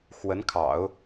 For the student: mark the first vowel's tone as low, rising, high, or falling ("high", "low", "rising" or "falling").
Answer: rising